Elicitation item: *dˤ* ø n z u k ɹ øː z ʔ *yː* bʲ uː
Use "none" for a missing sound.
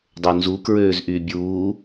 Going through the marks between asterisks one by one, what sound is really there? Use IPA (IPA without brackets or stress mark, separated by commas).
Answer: dˤ, yː